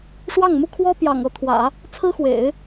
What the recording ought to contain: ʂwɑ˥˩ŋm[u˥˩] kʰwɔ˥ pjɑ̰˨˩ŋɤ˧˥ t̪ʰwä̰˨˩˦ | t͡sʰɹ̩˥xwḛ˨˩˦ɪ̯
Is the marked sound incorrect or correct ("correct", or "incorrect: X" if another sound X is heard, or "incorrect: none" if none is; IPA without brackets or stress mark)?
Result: incorrect: u˥